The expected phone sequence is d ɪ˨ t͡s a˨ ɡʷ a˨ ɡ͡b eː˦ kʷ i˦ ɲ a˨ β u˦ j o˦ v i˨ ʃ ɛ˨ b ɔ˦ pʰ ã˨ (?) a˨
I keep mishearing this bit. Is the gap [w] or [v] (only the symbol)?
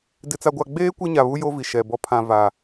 v